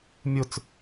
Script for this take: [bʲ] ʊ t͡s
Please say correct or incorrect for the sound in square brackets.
incorrect